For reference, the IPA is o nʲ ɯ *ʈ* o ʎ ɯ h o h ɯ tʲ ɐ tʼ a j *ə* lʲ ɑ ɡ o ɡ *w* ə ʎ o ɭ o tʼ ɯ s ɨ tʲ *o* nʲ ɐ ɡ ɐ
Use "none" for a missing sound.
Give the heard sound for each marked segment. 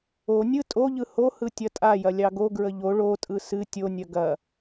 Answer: tʼ, ɐ, ɹ, o

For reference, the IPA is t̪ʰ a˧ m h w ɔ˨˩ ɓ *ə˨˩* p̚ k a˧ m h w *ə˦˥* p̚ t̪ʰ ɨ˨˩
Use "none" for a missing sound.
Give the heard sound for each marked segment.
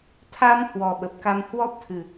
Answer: ə˨˩, ɔ˦˥

